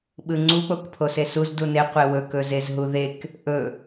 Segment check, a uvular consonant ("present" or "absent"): present